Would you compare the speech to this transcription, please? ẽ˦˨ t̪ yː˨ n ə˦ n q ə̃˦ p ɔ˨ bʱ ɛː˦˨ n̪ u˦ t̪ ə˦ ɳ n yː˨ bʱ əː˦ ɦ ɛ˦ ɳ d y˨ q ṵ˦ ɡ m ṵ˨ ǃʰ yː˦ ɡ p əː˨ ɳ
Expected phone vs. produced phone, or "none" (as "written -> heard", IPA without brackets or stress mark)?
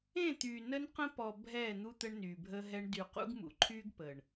none